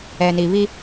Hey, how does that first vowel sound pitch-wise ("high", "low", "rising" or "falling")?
low